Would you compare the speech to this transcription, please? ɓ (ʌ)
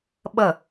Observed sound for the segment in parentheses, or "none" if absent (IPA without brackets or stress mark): ʌ